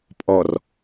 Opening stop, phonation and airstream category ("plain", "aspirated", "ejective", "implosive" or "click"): ejective